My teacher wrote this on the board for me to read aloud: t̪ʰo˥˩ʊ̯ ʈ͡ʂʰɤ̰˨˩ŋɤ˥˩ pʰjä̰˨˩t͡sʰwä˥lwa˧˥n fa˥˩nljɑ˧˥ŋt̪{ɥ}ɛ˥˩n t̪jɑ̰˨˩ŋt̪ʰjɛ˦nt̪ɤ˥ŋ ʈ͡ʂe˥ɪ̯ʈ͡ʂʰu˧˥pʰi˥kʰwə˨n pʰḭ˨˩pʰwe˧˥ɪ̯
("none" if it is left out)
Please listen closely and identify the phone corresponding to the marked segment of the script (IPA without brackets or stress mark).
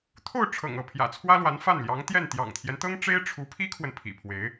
j